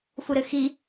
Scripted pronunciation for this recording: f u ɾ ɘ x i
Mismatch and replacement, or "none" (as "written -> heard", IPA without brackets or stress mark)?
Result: none